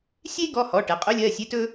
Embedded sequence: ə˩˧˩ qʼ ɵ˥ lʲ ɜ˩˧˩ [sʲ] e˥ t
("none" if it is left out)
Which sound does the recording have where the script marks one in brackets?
sʲ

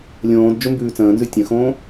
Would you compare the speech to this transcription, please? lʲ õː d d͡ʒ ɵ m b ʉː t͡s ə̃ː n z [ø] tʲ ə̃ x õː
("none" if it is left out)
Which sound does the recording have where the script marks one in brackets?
ʉ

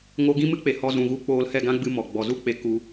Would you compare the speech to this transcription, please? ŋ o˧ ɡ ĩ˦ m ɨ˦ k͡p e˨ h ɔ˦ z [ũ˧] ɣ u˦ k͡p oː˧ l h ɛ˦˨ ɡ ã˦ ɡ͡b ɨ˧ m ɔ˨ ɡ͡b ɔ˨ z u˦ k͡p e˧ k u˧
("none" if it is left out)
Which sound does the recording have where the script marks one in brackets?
ũ˧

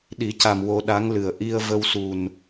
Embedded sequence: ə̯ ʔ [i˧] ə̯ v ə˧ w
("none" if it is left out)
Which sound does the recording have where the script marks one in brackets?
i˧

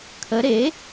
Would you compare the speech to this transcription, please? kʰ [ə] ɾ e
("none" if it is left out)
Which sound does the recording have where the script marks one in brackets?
ə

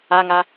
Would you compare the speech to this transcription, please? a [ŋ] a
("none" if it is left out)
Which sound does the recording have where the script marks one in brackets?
ŋ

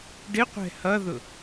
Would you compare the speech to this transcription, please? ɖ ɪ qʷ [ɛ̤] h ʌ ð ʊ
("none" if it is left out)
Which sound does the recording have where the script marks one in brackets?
ɛ̤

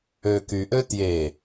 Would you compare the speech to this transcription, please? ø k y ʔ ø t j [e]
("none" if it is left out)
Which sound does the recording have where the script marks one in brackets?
e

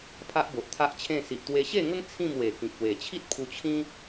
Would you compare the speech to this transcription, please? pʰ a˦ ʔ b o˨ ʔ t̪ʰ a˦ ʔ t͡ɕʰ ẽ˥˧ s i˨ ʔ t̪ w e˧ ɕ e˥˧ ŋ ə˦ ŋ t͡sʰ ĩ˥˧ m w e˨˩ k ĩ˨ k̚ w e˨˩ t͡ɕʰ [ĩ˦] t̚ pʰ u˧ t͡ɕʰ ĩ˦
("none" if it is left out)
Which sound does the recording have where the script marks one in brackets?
i˦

